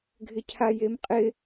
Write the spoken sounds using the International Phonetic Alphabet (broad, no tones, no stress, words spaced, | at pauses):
ɡʱɪcʰajemqʼɪ